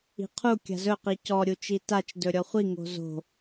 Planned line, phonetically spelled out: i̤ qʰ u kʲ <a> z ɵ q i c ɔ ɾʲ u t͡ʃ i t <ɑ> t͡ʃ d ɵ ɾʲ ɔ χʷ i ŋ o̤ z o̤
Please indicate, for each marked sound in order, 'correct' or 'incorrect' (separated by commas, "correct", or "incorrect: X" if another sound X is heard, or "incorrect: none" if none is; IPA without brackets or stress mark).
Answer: incorrect: a̤, incorrect: a